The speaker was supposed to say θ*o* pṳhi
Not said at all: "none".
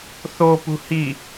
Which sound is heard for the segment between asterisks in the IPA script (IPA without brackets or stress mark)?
o